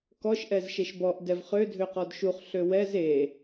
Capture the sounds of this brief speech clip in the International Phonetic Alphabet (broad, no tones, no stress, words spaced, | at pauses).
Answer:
kɔʃ ʔɛzʃeʃbɔʔ dɛvχø dʱøqɔdʃuχ ɬøwɛz e